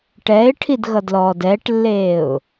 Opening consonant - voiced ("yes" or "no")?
no